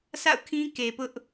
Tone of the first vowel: falling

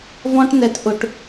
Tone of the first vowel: high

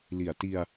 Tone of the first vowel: low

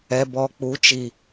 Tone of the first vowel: low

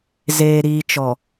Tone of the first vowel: low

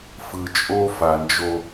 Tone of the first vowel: low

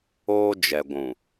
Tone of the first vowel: high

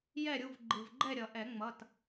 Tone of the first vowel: falling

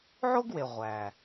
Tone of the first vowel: high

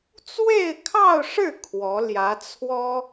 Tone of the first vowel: falling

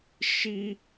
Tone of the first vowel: high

